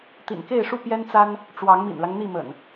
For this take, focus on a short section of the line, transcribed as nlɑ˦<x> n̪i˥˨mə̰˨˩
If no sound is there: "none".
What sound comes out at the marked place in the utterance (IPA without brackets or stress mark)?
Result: ŋ